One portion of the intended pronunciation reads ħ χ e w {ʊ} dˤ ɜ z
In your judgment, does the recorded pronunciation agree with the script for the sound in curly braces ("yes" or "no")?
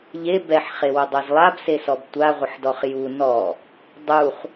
yes